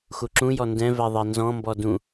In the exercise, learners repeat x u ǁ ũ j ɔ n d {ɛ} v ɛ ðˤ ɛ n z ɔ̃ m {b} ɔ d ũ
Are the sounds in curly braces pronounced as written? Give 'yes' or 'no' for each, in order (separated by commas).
no, yes